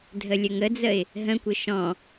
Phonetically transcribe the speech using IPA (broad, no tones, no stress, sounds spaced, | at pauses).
dʱ ə lʲ ə ŋ ə d͡z ə ɪ̯ | ɦ ə̃ kʷ ɘ ʃ ɔ̃